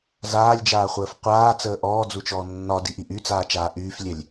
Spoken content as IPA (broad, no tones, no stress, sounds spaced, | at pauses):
z aː lʲ d͡ʒ aː χʷ əː f qʷ aː t͡s əː ʔ ɔː d͡z u t͡ʃ ɔː nː ɒ d i ʔ i ʔ y t͡s aː t͡ʃ aː ʔ yː f lʲ ɛ lʲ